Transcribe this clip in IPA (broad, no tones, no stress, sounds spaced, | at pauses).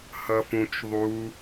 h ʌ f ũ t͡ʃ ðˤ u